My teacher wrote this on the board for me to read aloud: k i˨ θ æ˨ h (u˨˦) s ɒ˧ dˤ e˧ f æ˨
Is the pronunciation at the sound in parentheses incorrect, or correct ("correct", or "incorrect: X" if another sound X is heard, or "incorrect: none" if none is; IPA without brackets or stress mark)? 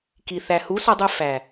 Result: correct